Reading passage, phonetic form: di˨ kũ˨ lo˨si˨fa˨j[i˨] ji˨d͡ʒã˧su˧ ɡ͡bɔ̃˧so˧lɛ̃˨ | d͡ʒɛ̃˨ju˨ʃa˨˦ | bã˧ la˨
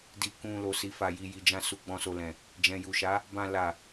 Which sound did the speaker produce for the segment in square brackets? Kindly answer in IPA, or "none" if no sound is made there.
i˨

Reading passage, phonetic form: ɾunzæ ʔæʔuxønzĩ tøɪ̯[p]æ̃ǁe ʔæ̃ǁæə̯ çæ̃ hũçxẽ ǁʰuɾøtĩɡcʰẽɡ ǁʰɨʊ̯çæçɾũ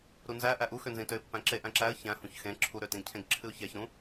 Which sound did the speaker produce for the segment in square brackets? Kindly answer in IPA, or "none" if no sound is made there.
pː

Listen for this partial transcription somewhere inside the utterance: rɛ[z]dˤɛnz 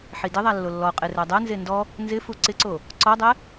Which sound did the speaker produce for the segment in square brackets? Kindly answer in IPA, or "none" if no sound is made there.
none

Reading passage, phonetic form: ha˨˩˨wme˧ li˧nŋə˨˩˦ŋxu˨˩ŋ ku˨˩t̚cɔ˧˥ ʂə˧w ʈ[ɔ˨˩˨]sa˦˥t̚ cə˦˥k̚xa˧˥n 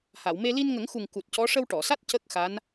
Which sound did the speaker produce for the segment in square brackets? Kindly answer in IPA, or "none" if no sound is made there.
ɔ˨˩˨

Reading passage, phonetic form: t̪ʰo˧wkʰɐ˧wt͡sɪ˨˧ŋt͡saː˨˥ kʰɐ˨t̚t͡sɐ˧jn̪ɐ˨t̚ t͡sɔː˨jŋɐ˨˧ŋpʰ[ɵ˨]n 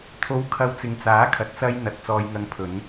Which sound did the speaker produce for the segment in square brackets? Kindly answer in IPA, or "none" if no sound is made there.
ɵ˨˧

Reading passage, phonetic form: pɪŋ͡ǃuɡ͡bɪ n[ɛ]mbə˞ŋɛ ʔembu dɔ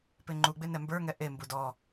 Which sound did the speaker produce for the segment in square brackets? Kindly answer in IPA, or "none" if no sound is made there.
ɛ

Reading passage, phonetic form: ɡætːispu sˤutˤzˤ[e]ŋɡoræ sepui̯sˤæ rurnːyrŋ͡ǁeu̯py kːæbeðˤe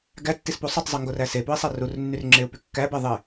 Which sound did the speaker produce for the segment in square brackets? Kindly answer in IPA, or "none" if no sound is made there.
i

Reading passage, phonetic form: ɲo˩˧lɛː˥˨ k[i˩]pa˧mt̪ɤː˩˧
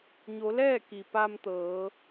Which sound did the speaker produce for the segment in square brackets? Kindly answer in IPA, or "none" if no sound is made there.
i˩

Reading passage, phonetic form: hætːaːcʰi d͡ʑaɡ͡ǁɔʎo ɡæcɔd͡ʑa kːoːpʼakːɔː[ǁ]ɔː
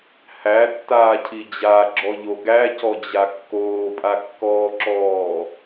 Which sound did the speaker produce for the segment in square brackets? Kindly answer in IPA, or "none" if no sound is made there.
ǁ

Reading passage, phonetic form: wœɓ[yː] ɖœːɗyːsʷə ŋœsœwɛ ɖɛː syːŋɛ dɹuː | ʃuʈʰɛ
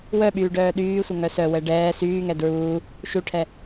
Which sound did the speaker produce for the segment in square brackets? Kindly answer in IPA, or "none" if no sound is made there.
yː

